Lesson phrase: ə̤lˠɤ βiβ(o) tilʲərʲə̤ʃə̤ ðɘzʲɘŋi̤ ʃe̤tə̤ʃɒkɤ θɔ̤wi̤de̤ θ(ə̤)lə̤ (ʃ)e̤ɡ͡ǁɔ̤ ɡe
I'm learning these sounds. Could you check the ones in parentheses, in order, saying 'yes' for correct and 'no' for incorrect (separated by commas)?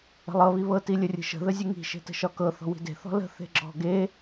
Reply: no, no, no